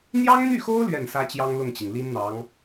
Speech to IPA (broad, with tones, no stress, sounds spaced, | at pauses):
n̪ j ɑ˥ ŋ n̪ y˥˩ x o˥ ʊ̯ l ɥ ɛ˥˩ n s ä˥ t͡ɕ j ɑ˥ ŋ l ʊ˥˩ ŋ t͡ɕ i˩ ŋ l i˥ n n̪ ɑ˧˥ ŋ